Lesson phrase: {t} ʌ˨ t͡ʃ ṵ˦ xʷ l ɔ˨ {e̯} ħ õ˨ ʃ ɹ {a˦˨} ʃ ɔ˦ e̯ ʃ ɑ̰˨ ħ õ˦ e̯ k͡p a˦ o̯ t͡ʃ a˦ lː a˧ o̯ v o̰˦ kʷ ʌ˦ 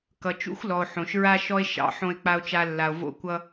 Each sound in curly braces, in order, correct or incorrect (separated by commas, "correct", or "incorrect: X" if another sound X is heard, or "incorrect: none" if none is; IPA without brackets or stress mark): incorrect: k, incorrect: o̯, incorrect: a˦